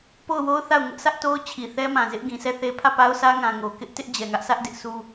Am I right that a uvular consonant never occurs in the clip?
yes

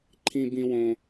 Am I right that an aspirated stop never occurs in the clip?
no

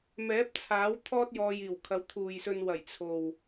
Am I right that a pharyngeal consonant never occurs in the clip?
yes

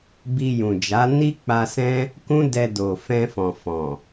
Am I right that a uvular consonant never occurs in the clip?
yes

